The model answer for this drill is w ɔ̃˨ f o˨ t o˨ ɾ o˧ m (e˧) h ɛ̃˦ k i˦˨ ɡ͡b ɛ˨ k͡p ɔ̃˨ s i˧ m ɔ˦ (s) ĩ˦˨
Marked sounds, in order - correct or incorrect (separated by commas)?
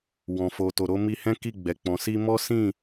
incorrect, correct